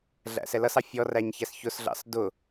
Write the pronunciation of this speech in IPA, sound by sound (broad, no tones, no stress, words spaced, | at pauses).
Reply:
ɮæ̰sɛlʌsɑ fʲɔræɲ çæsçʊsɮɑ̰s dʊ